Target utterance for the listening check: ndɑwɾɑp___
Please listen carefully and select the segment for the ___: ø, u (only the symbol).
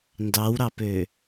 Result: ø